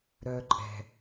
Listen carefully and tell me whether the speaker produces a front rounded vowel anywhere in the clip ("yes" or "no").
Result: yes